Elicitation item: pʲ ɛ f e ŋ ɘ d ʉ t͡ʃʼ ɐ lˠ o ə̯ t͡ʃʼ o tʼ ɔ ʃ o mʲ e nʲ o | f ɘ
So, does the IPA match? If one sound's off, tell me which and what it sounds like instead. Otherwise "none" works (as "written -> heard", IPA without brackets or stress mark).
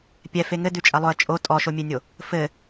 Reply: none